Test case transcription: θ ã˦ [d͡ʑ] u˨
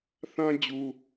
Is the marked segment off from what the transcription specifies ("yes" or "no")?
no